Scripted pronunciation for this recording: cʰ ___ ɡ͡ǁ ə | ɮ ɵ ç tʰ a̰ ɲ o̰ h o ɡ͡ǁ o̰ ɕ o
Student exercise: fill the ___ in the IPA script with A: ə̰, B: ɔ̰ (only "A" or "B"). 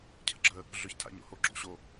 A